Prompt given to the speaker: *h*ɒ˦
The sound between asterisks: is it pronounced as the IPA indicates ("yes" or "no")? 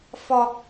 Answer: no